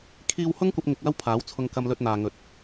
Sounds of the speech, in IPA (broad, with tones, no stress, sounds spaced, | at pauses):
kʰ iː˧ w h ʊ˥ ŋ kʷ ɐ˧ p̚ ŋ ɪ˧ k̚ w ɐ˥ w pʰ aː˨˥ w t͡sʰ ʊ˧ ŋ k ɐ˧ m l ɵ˧ t̚ n̪ aː˨ ŋ ɵ˨˥ t̚